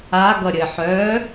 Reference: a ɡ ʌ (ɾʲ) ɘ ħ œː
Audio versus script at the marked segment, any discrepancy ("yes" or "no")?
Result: no